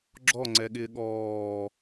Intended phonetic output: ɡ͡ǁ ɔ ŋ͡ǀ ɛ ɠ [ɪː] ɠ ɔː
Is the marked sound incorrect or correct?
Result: correct